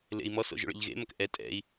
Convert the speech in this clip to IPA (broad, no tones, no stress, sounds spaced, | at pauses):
l ḛ i̯ m ɔ s o̰ ʒ o̰ ɭ ḛ ʎ ɣ ḛ m ɐ k ʔ ɛ tʼ ɛ̰ i̯